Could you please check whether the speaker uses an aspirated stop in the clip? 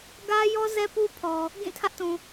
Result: yes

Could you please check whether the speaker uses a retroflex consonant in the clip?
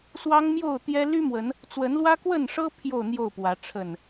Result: yes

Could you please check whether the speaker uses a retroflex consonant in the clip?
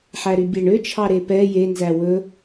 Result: yes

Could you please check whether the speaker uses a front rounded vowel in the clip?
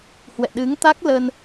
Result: no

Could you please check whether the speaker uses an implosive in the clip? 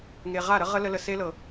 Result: no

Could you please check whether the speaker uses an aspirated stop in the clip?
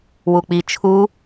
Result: yes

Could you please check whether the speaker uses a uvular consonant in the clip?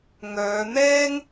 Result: no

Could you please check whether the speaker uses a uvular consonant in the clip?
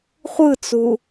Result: yes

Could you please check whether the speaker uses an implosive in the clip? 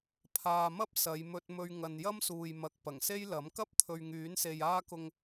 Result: no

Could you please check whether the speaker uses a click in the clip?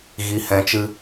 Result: no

